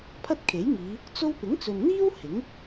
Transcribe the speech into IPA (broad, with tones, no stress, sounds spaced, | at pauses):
pʰ ɐ˥ t̚ kʰ e˨˥ j ŋ iː˨˧ | t͡s o˥ w p ɪ˨˥ ŋ t͡s ɵ˨ n n̪ iː˥ w h ɪ˨˥ ŋ